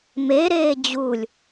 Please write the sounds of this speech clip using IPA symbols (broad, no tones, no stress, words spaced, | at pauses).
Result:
meɾeː d͡ʑulʲ